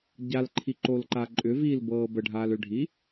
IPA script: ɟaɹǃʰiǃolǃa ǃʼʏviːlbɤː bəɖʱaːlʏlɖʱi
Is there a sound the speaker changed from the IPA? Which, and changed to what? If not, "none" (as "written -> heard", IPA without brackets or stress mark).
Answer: ɹ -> l